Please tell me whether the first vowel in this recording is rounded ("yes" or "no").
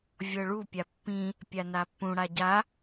no